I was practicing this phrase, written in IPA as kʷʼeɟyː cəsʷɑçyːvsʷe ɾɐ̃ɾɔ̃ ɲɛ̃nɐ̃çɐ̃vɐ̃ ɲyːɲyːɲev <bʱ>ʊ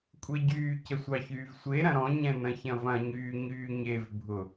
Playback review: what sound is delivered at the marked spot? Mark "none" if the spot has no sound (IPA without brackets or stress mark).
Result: bʱ